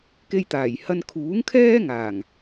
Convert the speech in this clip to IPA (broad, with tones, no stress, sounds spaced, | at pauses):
k e˧ j t̪ aː˨˩ j h ɐ˧ n kʰ uː˨˥ ŋ kʰ ɛː˥ ŋ aː˨˩ ŋ